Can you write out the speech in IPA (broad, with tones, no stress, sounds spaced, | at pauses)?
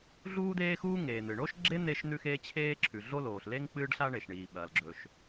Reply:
ɮ uː˥ d̪ eː˥ x uː˥ ŋ eː˩ n̪ ɨ˩ ɳ o˥ ʃ ɡ͡ǁ e˥ n̪ e˥ ʃ n̪ ʉ˥ x eː˥ t͡ɕʰ eː˥ ǁʰ ʉ˩ ɮ o˥ l oː˩ ɬ l e˥ ŋ k͡p ɨː˥ ɖ ɬ a˥ ɳ e˩ ʃ ɳ iː˩ ɓ ɐː˩ l ɡ͡ǁ ɵ˩ ʃ